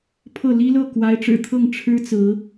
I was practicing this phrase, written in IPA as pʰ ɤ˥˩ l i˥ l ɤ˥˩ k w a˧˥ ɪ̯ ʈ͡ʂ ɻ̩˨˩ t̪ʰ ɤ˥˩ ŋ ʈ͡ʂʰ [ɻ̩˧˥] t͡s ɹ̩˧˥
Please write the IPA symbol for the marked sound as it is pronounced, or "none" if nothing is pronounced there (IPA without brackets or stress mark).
ɻ̩˥